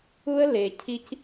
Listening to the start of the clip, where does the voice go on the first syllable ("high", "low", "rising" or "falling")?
high